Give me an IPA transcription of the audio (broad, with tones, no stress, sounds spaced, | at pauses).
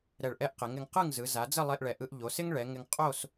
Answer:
ɾ ɛ˧˩ ɭ ʔ ɛ˥ ʔ q ɪ˩˧ ŋ ɪ˩˧ ŋ q ɯ˥˧ ŋ z ɯ˩˧ z a˩˧ d͡z ə˥˧ lˠ e˧ ʔ ɭ ɛ˩˧ ʔ ɯ˧ ʔ ʎ o˩˧ s ɪ˥ ŋ ɭ ɛ˩˧ ŋ ɪ˧ ŋ qʼ o˥˧ s